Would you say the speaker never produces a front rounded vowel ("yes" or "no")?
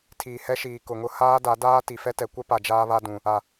yes